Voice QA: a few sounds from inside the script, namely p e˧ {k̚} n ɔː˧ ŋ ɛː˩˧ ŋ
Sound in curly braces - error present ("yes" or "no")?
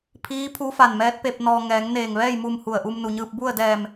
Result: yes